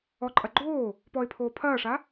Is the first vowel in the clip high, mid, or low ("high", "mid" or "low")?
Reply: mid